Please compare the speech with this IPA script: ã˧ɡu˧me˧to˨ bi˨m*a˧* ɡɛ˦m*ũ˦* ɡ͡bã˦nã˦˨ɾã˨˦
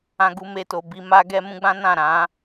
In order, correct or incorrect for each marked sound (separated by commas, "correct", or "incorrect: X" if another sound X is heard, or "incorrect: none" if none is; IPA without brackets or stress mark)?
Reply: correct, correct